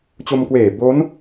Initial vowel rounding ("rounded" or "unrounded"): rounded